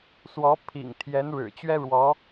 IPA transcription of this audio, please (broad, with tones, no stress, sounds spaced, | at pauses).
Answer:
s w ɔ˧˥ pʰ ḭ˨˩ ŋ t̪ʰ j ɛ˧˥ n ɻ ɻ̩˨˩ t͡ɕ ɥ ɛ˥ ɻ w ɔ˧˥